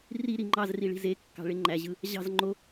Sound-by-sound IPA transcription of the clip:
r i ɾ i ŋ͡ǃ ɑ z r i ɭ i̤ z e kː ɑ̤ ɭ e ŋ͡ǃ æ ʑ ɯ | ʑ ɑ̤ z ŋ͡ǃ o

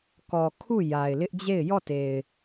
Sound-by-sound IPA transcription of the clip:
k ɔ˨ kʰ u˦˨ j a˨ ɪ̯ l ɪ˦ ʔ d͡ʑ e˦˨ ɪ̯ j ɔ˦˨ t e˨ ɪ̯

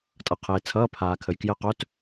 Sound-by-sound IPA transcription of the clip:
tʼ ʌ˨ qʰ eː˨ t͡sʰ ʌː˧˥˧ pʰ aː˨ kʰ ə˨ j k j ə˧˥˧ q œ˧˥˧ t

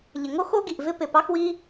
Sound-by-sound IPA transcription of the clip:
ʎ ɪ˩ ŋ o˥ x o˥ ɡ i˩ ʔ v ɪ˥ p ɪ˩ p ɑ˥ x w i˥

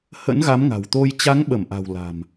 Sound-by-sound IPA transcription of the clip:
h ə̰˧˥ n ɣ a˨˦ m ŋ a̤˨˩ w t̪ o˧ j t͡ɕ a˨˦ ŋ ɓ ə˧˩ m ʔ a̤˨˩ w l a̤˨˩ m

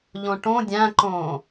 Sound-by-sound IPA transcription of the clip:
ʎ õ ʈ õ dʲ æ̃ ǃ õː

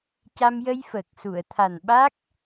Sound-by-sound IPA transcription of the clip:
c a˧ m j ə˧ j f əː˨˩ k̚ s u˨˩˨ ə̯ t̪ʰ a˨˩ n ɓ a˦˥ k̚

